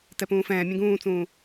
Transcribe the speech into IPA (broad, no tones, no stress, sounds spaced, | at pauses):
t ɛ p ũː f ɛ̃ː mʲ ɛ̃ ɡ ũː t͡s ũː